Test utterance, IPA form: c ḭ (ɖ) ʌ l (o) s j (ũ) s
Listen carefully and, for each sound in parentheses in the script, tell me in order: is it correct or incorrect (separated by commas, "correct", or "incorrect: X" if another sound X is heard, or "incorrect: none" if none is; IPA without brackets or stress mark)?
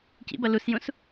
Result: incorrect: b, incorrect: u, correct